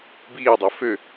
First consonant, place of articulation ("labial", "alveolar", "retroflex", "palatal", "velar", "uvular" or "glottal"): labial